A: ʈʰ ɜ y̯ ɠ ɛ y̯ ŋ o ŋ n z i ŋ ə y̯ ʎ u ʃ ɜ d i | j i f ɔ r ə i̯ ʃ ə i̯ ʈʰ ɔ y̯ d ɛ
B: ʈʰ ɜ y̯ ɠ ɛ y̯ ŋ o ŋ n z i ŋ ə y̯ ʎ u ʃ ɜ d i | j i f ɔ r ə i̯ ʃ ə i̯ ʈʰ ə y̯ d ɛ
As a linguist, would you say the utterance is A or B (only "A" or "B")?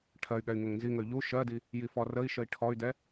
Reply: A